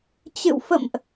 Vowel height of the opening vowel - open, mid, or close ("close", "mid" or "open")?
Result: close